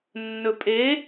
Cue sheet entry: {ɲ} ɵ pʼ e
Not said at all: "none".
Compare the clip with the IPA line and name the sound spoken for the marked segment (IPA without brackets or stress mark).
nː